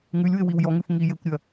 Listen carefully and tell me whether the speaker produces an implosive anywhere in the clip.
no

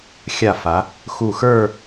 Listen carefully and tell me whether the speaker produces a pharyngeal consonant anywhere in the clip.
no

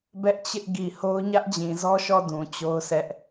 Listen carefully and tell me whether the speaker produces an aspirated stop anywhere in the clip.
no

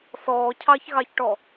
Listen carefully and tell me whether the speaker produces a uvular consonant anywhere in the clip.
no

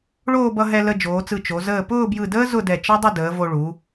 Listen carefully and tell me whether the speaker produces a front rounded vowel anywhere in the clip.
no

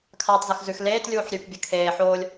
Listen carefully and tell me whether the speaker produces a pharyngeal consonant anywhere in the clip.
yes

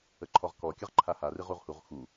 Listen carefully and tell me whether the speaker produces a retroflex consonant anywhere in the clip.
no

